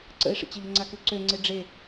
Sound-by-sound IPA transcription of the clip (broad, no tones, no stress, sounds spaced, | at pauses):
ǀ ə̰ ɪ̯ ʂ ə̰ t͡ɕ ə ʎ ə ŋ͡ǀ a k ʉ ǀ ø ŋ͡ǀ e ɖ͡ʐ e